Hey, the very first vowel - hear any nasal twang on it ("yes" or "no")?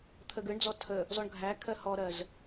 no